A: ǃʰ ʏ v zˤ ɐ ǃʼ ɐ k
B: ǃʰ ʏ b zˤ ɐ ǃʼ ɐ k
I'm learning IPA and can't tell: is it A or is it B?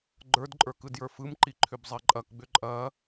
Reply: B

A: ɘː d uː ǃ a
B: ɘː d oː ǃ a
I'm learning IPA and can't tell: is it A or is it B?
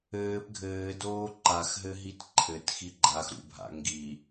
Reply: B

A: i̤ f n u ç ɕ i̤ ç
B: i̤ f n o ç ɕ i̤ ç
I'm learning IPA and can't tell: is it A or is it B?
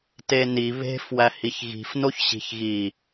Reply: B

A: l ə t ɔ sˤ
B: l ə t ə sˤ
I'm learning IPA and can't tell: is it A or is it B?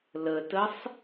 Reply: B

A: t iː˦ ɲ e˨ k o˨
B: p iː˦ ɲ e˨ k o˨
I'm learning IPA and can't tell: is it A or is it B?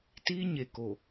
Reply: A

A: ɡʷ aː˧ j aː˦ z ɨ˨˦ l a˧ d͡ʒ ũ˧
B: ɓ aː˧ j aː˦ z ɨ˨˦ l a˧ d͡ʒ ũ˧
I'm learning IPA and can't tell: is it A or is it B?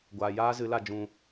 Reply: A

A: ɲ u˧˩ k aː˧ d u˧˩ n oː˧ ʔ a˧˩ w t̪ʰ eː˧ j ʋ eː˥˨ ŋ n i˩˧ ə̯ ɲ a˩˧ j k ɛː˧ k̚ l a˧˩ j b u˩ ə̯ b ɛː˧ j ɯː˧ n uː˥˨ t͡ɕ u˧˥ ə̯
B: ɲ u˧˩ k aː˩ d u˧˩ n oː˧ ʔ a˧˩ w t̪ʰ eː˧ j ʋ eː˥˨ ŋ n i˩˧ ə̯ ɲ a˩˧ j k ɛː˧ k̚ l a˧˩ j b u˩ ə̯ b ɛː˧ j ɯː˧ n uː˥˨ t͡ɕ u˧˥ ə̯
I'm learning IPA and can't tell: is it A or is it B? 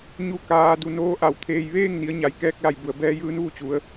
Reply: B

